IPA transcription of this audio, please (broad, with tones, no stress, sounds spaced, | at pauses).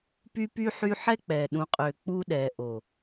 p y˦ p y˦ ħ y˦ ħ ɛ˦ k͡p ɛ˨ ɗ ũ˨ qʼ ø˨ k͡p u˦ ɗ ɛ˨ ʔ o˨